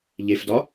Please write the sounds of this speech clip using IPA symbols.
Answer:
ʎ e f d ɒ

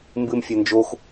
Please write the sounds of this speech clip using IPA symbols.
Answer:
m b ɨ m fʲ a n d͡ʒ o x

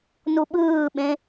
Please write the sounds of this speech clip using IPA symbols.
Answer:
n u ɓ ɯː ɓ ẽ

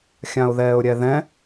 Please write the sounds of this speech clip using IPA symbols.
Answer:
xʲ ã ʊ̯ ð ɛː ʊ̯ ɾʲ ɛ ð ɛ̃

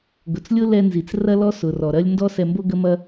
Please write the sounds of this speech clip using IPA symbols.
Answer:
ɡ ʊ˩ t͡s lʲ ʊ˥ l ɛ˧ n z i˩ t͡s r ɐ˥ l ɔ˥ s ʊ˩ r ɔ˩ ɾ ɐ˥ lʲ n d ɔ˥ s ɛ˧ m b o˥ ɡ ə˥ m ɐ˥

